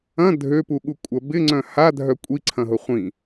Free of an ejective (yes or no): no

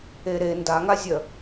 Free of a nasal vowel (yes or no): yes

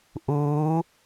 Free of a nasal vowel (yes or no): yes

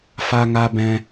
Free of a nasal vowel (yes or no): no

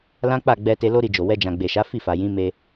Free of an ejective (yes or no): yes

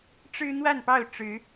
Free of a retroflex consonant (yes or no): no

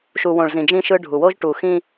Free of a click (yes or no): yes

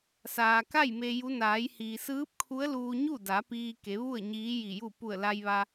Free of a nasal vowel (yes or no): yes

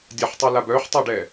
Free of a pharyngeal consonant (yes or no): no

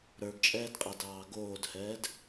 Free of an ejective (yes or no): no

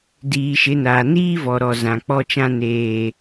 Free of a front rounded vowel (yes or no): yes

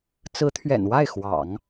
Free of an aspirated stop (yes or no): no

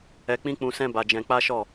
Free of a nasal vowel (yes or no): no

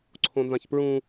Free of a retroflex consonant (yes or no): yes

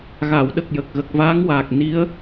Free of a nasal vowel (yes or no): yes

